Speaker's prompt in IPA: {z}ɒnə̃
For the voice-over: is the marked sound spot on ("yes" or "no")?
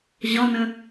no